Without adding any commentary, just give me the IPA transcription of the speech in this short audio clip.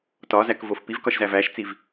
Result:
tɒzækvof pivkɒʃzæ væʃt͡siv

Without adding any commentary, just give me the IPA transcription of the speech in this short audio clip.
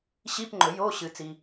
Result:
ɕi˧˥˧pŋ͡ǃɵ˨˩˦joː˧˥˧ ɕɨ˨˩˦ t͡si˨

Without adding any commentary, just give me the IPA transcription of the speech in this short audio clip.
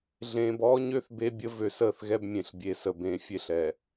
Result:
ɮẽː˨bɔː˦ɲø˦θ be˦bʲə˦ vø˨səː˦˨θɣɛ˦b mʲẽ˨ɬbʲe˨sə˨ bẽ˨˦fʲe˦ɬ ɛ˨

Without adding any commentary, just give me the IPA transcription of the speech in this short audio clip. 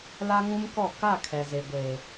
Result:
la˦ŋũ˦mkɔ˦˨ ka˦˨ kʰɛ˨ze˨ɡʷeː˨

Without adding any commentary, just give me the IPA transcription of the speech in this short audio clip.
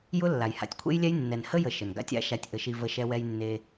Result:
jʊ˦ lːa˨jha̰˧tʲkʷʰḛ˦jlʲɛ˦j nːɛ˨n hə˦jə˨ ʃə˨n ɡa̰˧tʲa̰˨˦ ʃa˧tʲʔə˨˦ʃi˧ və˧ʃɛ˧ wɛ˧j nːe˧

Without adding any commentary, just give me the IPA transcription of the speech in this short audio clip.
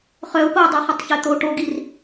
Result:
χœʊ̯poɪ̯dˤu χətˤçɛt̪o ʈoɡir

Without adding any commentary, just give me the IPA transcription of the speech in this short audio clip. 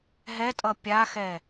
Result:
ɦɛtʼʌ pʲaxɛ

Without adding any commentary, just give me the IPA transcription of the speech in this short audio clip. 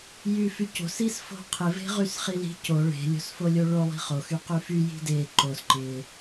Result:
jyfyco̤s isfo̤qʰɪ ve̤ʁysχili̤ co ɭe̤ lʲo̤sfolʲoɭo lˠi̤χo xyqyfy ji̤de ǃos ǃɪ

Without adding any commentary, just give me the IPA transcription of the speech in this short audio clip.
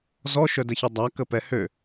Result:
zɔʃœ dəçødˤa kəpɛhø

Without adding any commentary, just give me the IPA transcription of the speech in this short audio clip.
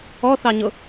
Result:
ɔθɑɲʊ

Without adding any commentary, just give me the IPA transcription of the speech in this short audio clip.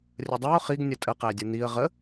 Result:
rʲədˤæʊ̯ χiɡ nʲətʼə qædʲən̪iə̯ ʁə

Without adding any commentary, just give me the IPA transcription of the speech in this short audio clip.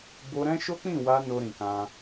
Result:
bo˧ɾɛ̃˦ʃo˦ k͡pĩ˦˨wa˧ no˧ɾĩ˨kã˧

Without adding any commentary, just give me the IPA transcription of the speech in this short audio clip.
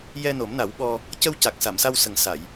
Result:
jɛ˧no˨˩˦mna˨˩˦wɓɔ˧ | cə˧wca˨˩k̚sa˨˩˨msa˧w sə˨˩ŋsa˨˩˨j

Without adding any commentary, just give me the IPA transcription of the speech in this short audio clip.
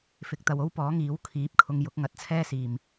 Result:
fɪ˨˥k̚t̪ɐ˨w o˥wpɔː˨˥ŋiː˨˥w kʰiː˨˥p̚kʰʊ˧ŋ jʊ˨˥k̚ ŋɐ˧t̚t͡sʰɛː˥siː˨˩m

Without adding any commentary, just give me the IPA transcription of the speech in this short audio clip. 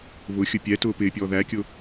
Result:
βʊxʲʊ pʲɛtʊː pɪpʲɔː ðækʲʊ

